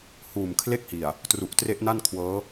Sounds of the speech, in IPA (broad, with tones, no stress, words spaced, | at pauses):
huː˨˩m kʰle˥˩k̚hi˨˩a̯ | tru˨˩ʔtre˦˥ʔna˥˩nkʰwɤː˦˥